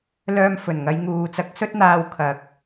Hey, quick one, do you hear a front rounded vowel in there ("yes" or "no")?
yes